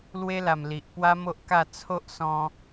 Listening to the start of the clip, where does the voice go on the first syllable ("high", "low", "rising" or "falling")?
high